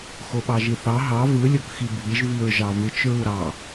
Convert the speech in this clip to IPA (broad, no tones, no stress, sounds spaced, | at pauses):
x o ɓ ɑ ʒ i θ ɑ ɦ ɑ v ɯ lʲ o k x i bʱ i ʒ v i ɹ ʒ ɑ v ɯ t͡ʃ ɹ u ɾ ɑ